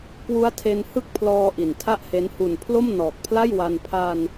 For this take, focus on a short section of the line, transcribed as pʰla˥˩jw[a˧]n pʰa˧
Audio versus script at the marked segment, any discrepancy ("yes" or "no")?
no